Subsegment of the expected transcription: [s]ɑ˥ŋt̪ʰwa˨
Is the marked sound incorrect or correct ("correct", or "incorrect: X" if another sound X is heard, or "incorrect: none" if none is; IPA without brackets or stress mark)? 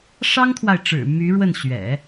incorrect: ʂ